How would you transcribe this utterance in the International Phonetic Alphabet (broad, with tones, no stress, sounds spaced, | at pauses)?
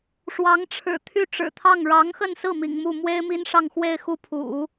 ʂ w ɑ˧˥ ŋ ʈ͡ʂʰ ɻ̩˨˩ t̪ʰ y˥˩ ʈ͡ʂ ɻ̩˨˩ t̪ʰ ɑ˥˩ ŋ ɻ ɑ˧˥ ŋ x ə˥˧ n s ɹ̩˥˩ m ḭ˨˩ ŋ m u˥˩ m w e˥ ɪ̯ m i˥ n ʂ ɑ˥˧ ŋ x w e˥˧ ɪ̯ x u˥˩ pʰ ṵ˨˩˦